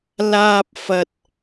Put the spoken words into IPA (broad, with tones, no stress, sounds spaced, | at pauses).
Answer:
l aː˥ p̚ f ɐ˥ t̚